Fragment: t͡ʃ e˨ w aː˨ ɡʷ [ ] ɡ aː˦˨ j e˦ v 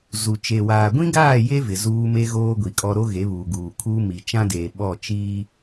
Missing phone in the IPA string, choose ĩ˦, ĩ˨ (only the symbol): ĩ˦